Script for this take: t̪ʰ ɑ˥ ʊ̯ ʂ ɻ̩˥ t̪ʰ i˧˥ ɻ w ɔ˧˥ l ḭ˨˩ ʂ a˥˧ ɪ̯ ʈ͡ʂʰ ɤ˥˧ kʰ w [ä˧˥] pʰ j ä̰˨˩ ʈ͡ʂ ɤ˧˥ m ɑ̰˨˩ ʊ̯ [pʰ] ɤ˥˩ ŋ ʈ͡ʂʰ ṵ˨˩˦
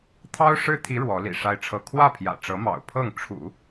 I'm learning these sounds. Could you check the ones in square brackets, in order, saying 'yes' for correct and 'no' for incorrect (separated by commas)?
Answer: no, yes